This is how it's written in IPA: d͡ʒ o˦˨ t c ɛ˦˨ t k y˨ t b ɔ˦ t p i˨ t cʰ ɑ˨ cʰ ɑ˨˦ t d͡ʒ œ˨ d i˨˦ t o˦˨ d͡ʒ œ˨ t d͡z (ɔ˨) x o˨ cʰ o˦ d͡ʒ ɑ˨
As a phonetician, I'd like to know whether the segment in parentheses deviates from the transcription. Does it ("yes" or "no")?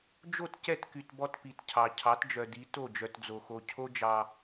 yes